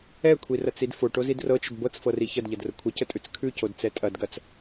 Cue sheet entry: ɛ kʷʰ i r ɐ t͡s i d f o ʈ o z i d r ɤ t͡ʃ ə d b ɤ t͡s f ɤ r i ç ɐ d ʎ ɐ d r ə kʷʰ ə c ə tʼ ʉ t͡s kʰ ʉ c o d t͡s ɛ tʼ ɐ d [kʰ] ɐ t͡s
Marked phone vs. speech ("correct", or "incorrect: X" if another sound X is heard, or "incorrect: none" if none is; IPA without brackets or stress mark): incorrect: ɡ